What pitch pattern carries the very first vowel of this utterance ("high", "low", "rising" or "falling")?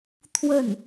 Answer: falling